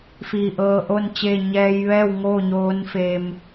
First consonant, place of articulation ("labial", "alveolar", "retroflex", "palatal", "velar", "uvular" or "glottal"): labial